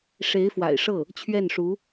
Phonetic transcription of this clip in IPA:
ʂ e˧˥ ɪ̯ f w a̰˨˩ ɪ̯ ʂ ɤ˥˩ | t͡ɕʰ ɥ ɛ˥˩ n ʂ u˧˥

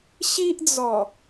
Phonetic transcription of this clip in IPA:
ɕ i˦ ʔ d͡z ɔ˨˩

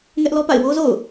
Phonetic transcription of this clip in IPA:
ŋ ɛ˦ ʔ l ɔ˦ p a̰˦˨ ɪ̯ w o˦ z o̰˦˨ ʊ̯

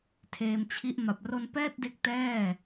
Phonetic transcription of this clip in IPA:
tʰ eː˧ m t͡ɕʰ i˦˥ ʔ m a˨˩ p̚ r o˧ n p ɛː˥˩ t̚ d e˦˥ k̚ t ɛː˥˩

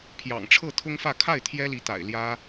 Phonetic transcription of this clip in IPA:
pʰ j ɑ̰˨˩ ŋ ʈ͡ʂʰ ɤ˥˩ t̪ʰ ʊ˥ ŋ f ä˥˧ kʰ a˥˩ ɪ̯ t̪ʰ j ɛ˥ l i˧˥ t̪ a̰˨˩ ɪ̯ l j ä˥

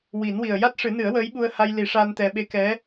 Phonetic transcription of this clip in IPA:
w i˨˩˦ n w i˨˩ ə̯ j a˦˥ t̚ ʂ ɨ˨˩˦ n ɨ˨˩˦ ə̯ w əː˧˥ j ɓ u˧ ə̯ h a˧ j l i˨˩˦ ʂ a˧ n t̪ ɛ˧ ɓ e˧˥ k ɛ˧˥

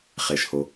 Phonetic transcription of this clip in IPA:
χ e˩ ʃ h o˩

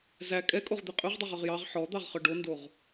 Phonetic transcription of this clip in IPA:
z æ kʼ ɛ kʼ o ʁ d̪ e qʼ ø ʁ dˤ ø ʁ œ ʁ j ɑ ʁ ħ ɔ d̪ ɑ ʁ χ œ ɖ o n d o ʁ

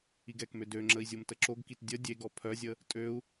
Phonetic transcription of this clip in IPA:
i ɡ ɛ k m ø d ø ŋ͡ǁ ə i̯ zʲ o m t ə ǁ o ɡ k i t dʲ ə dʲ e ɡ ɔ pʰ œ zʲ ə | tʼ ø u̯

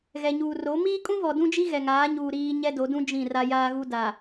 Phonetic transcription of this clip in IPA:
ɣ ɛ˨ ɲ uː˨ r o˨˦ m iː˦ kʼ ũ˦ v ɔ˨ d ũ˦ d͡ʒ i˦ ɣ ɛ˨ ŋ aː˨˦ ɲ uː˨ ɾ iː˦ ɲ ɛ˦ d o˨˦ d ũ˦ d͡ʒ ĩ˦˨ r a˦ j aː˦ ɣ u˦ d a˨

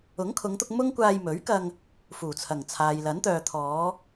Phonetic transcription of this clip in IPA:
ʊ˨˥ ŋ kʰ ʊ˨˧ ŋ t̪ ʊ˧ k̚ m ʊ˥ ŋ kʷ aː˧ j m ɵ˨˥ ɥ k ɐ˧ ŋ | f uː˨˩ t͡sʰ ɐ˨˩ ŋ t͡sʰ aː˨ j l ɐ˨˥ n t̪ œː˨ t̪ʰ ɔː˨˧

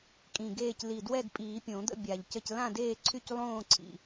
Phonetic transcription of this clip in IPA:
kʼ ĩ˨˩ ɡ eː˥˨ c l i˨˩ d w ɛ˥˨ d pʼ iː˨˩˦ pʲ õ˨˩˦ d̪ ə̰˥˨ bʲ a˨˩ ʎ c ə˥˨ c l ã˥˨ d eː˥˨ ǀʰ y˥˨ c lˠ õː˥˨ ǀʰ ḭ˨˩

